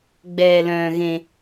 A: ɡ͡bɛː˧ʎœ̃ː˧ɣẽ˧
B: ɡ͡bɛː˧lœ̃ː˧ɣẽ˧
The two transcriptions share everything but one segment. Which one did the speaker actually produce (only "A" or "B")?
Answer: B